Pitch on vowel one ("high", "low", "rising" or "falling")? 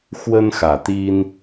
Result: high